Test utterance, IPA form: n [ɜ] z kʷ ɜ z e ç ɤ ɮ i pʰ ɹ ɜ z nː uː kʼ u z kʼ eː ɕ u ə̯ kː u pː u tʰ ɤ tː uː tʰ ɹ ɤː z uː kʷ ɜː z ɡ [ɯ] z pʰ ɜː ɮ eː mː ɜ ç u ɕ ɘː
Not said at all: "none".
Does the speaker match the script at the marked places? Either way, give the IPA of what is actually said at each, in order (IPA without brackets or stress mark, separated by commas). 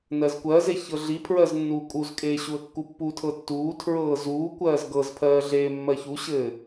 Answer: ɜ, ɤ